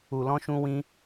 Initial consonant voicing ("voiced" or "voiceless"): voiced